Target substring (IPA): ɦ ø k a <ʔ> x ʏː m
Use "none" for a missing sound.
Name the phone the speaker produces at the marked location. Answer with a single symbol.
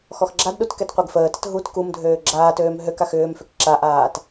none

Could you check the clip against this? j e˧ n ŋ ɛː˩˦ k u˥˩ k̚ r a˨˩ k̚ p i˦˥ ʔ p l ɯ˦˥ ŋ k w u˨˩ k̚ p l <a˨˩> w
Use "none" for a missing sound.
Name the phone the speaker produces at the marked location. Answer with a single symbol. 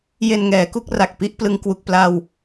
a˧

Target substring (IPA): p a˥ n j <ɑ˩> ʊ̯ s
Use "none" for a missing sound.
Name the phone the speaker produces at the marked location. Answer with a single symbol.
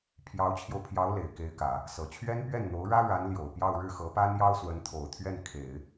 ɑ˥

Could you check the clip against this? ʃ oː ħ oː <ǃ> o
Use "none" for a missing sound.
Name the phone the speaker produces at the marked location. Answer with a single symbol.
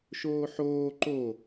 ǃ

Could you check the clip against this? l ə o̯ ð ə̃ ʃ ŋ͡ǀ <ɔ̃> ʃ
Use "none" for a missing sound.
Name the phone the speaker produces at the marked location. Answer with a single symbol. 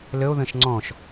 ɔ̃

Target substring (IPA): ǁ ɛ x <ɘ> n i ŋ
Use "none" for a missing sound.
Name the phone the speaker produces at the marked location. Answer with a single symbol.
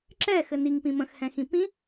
ɘ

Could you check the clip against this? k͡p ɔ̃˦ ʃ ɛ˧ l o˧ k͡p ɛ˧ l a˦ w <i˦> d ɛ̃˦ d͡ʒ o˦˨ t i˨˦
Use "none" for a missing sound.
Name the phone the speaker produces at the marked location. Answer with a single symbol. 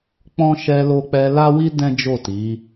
i˦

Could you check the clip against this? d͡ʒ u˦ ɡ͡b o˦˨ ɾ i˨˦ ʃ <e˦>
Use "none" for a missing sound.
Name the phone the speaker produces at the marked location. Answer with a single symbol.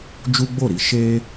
e˦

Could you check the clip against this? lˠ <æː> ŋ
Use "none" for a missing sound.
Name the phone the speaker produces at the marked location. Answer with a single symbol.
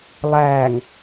æː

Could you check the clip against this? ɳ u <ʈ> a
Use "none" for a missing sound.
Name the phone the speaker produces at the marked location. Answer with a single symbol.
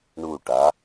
ʈ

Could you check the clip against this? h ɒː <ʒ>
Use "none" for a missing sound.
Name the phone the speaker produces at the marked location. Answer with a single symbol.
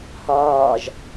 ʒ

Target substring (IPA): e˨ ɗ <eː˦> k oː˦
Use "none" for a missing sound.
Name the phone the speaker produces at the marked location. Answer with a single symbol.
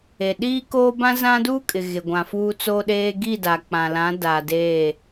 iː˦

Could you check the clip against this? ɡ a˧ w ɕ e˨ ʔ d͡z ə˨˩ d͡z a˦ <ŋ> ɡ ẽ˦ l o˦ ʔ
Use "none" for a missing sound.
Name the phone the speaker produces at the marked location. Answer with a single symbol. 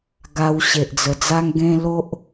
ŋ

